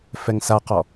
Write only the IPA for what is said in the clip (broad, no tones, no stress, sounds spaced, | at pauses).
f ɛ ŋ s a q ɔ